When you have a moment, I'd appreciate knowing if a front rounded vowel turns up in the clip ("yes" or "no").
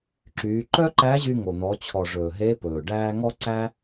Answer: yes